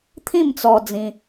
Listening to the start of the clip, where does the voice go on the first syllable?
falling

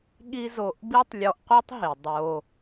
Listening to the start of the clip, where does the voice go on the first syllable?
high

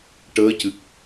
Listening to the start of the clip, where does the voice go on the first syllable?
rising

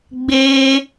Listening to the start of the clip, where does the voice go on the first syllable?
high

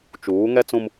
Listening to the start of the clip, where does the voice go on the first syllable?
rising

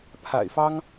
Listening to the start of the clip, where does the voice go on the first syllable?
low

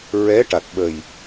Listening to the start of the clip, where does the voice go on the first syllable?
rising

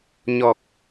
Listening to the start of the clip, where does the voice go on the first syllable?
low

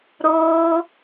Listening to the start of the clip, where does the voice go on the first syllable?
high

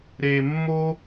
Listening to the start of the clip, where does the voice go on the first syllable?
low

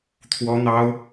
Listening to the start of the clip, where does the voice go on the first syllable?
high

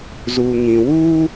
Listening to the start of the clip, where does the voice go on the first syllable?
low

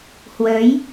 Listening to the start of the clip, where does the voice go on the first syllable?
rising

